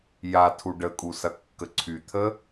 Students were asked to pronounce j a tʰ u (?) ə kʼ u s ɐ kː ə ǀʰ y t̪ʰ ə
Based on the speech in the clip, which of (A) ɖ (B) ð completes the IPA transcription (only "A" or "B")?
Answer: A